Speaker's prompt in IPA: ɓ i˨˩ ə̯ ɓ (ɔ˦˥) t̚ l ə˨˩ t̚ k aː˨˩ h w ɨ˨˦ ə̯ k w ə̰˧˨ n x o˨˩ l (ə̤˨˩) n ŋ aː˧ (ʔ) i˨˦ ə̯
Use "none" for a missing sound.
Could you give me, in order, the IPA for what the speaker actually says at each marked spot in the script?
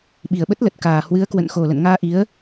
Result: ə˦˥, ə̰˧˨, ʔ

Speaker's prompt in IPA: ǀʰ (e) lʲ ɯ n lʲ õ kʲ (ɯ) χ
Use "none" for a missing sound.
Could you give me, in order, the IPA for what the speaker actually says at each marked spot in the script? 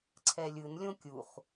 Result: ɛ, u

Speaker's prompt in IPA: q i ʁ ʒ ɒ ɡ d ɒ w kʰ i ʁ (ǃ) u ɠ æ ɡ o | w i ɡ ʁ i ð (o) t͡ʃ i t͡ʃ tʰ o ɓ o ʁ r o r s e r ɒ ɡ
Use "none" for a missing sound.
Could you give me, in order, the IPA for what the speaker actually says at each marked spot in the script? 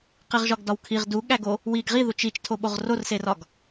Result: d, u

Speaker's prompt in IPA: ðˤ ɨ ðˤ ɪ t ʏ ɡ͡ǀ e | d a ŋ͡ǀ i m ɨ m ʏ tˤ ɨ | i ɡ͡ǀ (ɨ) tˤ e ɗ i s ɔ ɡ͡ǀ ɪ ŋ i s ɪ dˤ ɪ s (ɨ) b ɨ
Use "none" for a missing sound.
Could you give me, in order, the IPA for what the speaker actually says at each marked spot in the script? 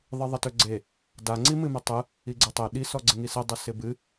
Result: ɨ, ɪ

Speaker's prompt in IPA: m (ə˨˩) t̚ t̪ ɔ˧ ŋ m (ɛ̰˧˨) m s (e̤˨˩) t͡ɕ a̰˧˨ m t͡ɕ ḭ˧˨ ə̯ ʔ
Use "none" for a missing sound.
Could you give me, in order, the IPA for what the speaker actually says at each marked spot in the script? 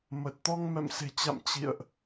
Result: ə˨˩, ɛ̰˧˨, e̤˨˩

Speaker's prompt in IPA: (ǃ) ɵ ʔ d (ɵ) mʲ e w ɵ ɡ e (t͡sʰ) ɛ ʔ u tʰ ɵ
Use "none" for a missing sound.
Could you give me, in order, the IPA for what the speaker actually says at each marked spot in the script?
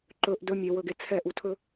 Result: ǃ, ɵ, t͡sʰ

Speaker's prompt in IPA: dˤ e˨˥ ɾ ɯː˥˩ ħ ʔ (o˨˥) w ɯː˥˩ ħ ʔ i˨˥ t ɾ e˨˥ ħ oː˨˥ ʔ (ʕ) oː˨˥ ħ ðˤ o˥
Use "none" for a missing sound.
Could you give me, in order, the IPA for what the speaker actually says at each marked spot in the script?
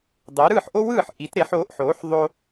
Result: o˥, ħ

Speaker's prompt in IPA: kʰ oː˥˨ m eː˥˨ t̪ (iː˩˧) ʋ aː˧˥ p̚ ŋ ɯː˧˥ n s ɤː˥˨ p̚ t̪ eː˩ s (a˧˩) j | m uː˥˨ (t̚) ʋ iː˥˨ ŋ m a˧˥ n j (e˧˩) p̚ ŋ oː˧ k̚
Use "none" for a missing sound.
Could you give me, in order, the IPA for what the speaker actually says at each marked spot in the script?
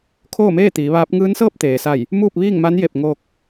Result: iː˩˧, a˧˩, p̚, e˧˩

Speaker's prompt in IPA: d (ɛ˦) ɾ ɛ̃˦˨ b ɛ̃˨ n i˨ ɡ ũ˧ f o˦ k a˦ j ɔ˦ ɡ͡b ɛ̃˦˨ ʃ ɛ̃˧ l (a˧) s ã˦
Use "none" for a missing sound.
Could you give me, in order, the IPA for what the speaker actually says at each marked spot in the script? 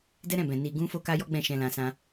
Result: ɛ˦, ã˧

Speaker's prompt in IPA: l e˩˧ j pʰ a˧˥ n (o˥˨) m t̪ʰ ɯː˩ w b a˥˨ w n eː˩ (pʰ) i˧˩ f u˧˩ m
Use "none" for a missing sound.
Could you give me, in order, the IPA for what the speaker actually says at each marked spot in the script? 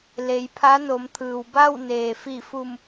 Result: o˩˧, f

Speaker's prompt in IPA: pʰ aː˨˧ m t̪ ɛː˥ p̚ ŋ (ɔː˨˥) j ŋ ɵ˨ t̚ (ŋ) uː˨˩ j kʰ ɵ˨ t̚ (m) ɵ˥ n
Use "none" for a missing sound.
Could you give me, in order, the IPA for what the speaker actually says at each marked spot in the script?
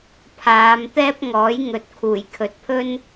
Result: ɔː˨˥, kʰ, pʰ

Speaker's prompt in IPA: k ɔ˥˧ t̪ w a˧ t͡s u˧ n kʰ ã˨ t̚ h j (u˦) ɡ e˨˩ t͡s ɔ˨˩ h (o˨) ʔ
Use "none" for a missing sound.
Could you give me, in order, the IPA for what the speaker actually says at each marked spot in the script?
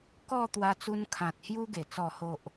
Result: u˧, o˨

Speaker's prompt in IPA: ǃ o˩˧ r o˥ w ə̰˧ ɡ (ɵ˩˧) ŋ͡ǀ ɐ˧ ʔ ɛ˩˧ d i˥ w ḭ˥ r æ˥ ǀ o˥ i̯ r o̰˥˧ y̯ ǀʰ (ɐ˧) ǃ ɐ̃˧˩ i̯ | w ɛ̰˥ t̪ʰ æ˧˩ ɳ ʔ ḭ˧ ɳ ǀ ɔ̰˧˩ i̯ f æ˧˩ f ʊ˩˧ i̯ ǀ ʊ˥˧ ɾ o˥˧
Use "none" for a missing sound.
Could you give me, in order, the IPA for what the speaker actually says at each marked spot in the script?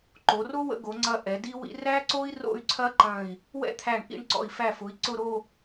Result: o˩˧, ɐ˥

